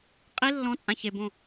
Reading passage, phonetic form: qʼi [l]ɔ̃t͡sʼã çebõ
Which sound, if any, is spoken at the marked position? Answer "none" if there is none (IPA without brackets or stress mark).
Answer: lː